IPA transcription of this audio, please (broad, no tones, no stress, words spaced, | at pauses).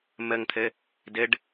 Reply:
məŋt̪ʰɘ | dɘɖ